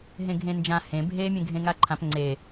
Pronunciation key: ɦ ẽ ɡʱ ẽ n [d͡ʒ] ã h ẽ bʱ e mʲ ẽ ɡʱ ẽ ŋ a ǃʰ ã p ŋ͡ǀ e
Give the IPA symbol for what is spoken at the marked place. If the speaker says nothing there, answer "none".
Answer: d͡ʒ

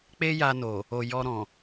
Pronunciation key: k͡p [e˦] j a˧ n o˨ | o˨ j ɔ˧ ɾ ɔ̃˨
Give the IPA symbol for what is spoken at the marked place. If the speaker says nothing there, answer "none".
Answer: e˦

